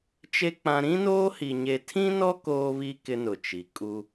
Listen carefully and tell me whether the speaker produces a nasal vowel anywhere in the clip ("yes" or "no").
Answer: yes